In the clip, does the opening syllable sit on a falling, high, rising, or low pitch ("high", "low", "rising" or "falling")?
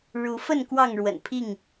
rising